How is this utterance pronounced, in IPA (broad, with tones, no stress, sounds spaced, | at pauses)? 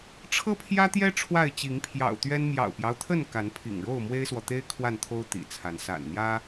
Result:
ʈ͡ʂʰ ɤ˦ pʰ j ä˦ t̪ j ɛ˦ ʈ͡ʂʰ w a˥˨ ɪ̯ t͡ɕ i˨˦ ŋ pʰ j ɑ̰˨˩ ʊ̯ t̪ ɥ ɛ˦ n m j ɑ̰˨˩ ʊ̯ p j ɑ˦ ʊ̯ t̪ʰ ə˥˨ n k a˨˦ n pʰ ḭ˨˩ ŋ ɻ o˥˨ ʊ̯ m w e˦ ɪ̯ s w ɔ˨ t̪ e˦ ɪ̯ kʰ w a˥˨ n t̪ʰ o˦ ʊ̯ t̪ ḭ˨˩ t͡sʰ a˨˦ n s a̰˨˩ n n̪ j ä˦